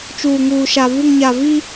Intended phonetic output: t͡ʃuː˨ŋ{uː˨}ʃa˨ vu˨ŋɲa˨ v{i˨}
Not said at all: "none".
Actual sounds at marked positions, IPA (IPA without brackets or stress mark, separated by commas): uː˨, i˦